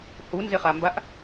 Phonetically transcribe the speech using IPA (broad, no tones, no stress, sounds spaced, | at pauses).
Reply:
h u n z e χ a m b a ʔ